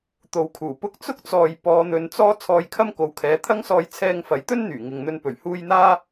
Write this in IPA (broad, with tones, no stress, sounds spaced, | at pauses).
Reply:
t̪ o˨ w kʰ uː˨˩ p ʊ˧ k̚ t͡s ʊ˥ k̚ t͡s ɔː˨ j p ɔː˨˧ n̪ ɵ˨˧ n t͡s ɔː˥ t͡sʰ ɔː˧ j kʰ ɐ˥ m k o˨˥ w kʰ ɛː˨˥ t̪ʰ ɐ˥ ŋ s ɔː˧ j t͡sʰ ɛː˧ ŋ f ɐ˨˥ j t̪ ɵ˥ n n̪ yː˨˩ ŋ ɪ˨ ŋ n̪ ɵ˧ n p ɵ˨˩ ɥ h uː˧ j n̪ aː˥